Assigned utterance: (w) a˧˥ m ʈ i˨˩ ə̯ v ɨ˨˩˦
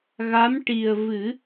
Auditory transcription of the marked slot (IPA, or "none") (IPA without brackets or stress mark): ɣ